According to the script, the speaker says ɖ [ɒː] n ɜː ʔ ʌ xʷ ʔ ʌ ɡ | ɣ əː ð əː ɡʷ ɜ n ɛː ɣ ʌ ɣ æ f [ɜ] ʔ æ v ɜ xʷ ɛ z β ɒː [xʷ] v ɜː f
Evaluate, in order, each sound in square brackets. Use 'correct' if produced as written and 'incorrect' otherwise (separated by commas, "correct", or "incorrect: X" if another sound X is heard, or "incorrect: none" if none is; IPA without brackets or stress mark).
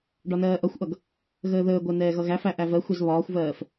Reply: incorrect: ɒ, incorrect: æ, correct